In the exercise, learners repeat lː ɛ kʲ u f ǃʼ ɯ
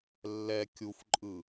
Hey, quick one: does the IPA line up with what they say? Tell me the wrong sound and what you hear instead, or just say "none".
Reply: none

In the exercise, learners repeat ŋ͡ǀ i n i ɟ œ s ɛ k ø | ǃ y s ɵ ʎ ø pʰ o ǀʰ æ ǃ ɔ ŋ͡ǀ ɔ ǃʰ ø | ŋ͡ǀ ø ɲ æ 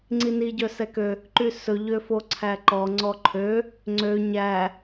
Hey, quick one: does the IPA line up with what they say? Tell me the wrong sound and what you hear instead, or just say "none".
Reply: pʰ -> f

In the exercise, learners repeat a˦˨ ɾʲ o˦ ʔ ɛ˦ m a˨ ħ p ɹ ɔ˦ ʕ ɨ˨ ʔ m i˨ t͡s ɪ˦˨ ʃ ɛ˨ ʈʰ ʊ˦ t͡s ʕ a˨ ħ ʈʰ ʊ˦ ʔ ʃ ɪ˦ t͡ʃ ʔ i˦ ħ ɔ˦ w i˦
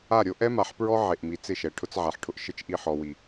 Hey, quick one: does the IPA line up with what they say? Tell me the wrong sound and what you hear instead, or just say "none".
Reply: ɨ˨ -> e˨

